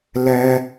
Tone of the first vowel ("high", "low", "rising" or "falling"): high